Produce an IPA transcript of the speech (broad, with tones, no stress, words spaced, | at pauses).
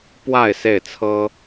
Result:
pwa˥˨ɪ̯ se˥˨ɪ̯t͡sʰɤ˦